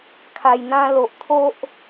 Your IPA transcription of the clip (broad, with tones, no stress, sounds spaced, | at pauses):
kʰ a˧ j n̪ ã˦ l o˨ ʔ t̪ʰ o˦ ʔ